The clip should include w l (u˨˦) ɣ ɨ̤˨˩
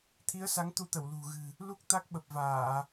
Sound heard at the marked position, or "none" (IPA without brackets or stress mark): ṳ˨˩